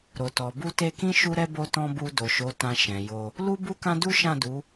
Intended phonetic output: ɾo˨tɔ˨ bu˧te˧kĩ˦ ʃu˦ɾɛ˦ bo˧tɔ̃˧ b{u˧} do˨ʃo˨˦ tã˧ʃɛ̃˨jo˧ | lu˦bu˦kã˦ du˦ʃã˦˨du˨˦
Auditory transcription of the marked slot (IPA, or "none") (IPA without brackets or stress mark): u˧